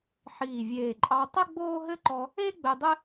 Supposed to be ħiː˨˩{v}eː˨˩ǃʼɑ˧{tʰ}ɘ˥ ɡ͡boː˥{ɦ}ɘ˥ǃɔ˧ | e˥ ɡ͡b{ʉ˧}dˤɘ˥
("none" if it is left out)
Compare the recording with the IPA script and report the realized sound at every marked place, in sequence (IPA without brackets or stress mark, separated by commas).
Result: vʲ, tˤ, ɦ, ɘ˧